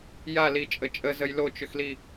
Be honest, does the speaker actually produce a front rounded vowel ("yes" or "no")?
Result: yes